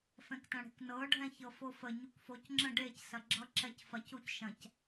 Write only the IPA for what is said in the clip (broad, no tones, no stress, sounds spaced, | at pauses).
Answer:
f ɛ̃ k t ɐ̃ ɽ e̤ k n ɤ ɖʱ ɛ̃ ç ɤ f o f ə ɲ u k f o c ŋ͡ǁ ə̃ ɖ e c s ɐ ɡ͡ǁ ʌ ǁ ɛ c f ɐ c u c ʃ ɐ̃ c